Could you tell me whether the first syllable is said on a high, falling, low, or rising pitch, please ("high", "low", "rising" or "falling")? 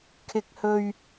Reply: high